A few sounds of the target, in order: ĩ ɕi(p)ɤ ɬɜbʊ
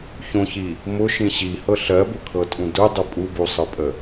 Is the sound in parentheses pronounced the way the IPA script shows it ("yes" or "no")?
no